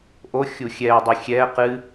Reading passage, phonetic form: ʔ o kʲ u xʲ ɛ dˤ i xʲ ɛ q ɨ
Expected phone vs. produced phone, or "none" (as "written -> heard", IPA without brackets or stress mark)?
kʲ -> xʲ